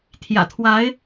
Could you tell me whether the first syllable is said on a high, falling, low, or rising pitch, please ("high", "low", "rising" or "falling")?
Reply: low